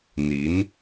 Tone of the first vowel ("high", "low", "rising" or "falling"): rising